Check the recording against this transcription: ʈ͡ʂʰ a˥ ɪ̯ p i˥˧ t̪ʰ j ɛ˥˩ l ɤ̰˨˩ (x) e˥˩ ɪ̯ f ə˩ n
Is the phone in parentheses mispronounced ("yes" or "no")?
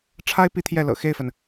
no